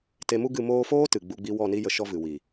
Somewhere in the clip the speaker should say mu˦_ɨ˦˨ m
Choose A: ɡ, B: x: A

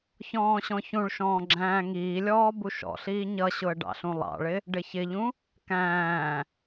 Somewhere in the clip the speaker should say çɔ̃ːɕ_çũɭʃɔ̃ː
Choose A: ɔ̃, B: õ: A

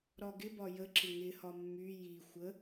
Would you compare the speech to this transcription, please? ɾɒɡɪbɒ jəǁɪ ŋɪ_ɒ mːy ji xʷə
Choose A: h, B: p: A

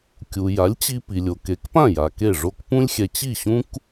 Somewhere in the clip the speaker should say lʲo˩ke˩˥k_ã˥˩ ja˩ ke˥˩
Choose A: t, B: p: B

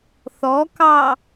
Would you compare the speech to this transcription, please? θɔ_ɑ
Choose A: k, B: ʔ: A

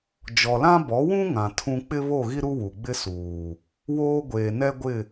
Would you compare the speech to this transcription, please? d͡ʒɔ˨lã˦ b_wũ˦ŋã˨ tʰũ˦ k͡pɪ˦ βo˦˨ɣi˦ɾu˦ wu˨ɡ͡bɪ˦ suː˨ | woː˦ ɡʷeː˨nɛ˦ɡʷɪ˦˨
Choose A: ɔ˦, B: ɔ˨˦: B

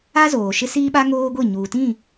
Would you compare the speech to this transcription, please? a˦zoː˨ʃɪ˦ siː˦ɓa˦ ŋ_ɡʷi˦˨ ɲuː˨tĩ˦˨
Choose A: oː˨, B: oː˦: B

